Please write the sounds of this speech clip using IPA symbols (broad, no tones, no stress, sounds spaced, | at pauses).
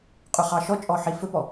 qʼ ɵ χ ɑ ʃ ɔ t͡ʃʼ ɔ ħ i f ɵ p ɔ